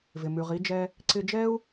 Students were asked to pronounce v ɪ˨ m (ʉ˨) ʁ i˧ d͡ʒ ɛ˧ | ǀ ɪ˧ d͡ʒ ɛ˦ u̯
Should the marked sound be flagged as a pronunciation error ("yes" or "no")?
no